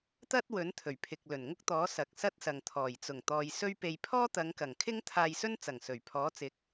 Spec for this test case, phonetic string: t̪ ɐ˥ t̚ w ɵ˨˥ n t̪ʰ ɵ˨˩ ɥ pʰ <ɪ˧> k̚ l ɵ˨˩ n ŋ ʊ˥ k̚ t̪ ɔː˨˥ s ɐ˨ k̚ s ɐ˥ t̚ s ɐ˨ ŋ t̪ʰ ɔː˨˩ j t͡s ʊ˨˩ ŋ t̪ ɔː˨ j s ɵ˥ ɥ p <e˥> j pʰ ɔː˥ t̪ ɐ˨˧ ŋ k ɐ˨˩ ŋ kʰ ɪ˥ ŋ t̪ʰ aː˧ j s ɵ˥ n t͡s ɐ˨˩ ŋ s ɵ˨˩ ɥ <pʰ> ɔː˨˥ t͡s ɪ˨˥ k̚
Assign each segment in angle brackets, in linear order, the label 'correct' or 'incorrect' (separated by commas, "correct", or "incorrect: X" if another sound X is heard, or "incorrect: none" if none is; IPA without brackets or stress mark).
incorrect: ɪ˨, incorrect: e˧, correct